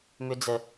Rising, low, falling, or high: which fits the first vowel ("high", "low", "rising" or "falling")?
high